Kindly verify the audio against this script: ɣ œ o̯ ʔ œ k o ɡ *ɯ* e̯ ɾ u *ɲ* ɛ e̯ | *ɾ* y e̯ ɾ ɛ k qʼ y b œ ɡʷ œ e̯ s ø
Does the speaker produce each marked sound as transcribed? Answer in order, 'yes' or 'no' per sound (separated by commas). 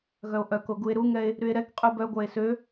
no, no, yes